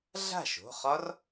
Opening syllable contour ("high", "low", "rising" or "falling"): falling